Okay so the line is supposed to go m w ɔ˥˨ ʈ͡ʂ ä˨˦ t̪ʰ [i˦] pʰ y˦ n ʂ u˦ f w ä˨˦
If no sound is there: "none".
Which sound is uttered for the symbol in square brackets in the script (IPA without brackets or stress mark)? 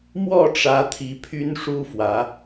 i˨˦